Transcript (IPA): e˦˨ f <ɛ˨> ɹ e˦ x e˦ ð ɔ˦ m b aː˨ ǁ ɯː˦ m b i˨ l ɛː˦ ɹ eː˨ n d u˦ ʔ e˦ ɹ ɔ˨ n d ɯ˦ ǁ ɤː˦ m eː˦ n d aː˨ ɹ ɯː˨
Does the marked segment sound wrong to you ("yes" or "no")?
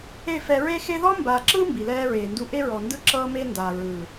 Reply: no